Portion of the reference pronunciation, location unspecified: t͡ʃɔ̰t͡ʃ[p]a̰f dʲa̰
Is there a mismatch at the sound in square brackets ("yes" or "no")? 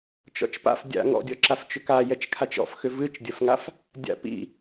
no